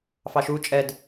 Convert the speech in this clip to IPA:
f ɑ ʃ u t͡ʃʼ ɛ d

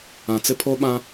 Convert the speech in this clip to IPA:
ã˨ t͡s ɪ˦ pʰ o˦ ɓ ã˦

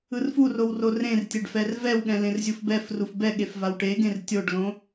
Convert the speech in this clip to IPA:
ɯ r f u r o w r o r ẽ r tʲ ɛ ɖ f ɛ r v ɛ w ɠ ɛ̃ l ẽ r zʲ u f b ɛ f r u f b ɛ ɠ e f v a w ʈ e ɡ ẽ r tʲ o ɖ l õ

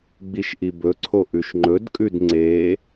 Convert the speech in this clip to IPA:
ɡ͡b i ʃ ʔ i b ɵ ǀʰ o ʔ ʉ ʃ ŋ͡ǃ ɵ d kʼ ʉ d ŋ͡ǀ e

